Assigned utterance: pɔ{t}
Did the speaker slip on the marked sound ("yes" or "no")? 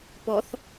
yes